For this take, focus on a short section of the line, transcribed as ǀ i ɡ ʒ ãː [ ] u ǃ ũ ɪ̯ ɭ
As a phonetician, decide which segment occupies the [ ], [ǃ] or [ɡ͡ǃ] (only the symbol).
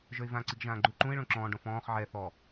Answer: ɡ͡ǃ